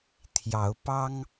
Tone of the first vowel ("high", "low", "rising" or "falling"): rising